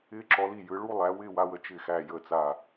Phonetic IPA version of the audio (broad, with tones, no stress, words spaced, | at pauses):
ɪː˧ǁɔ˩˧li˧˩ jɯ˩˧ɭu˥˧ lˠæ˩˧wɪː˥˧wa˧wə˧ t͡ʃɪ˧˩xæ˧˩jə˧˩ t͡sa˧˩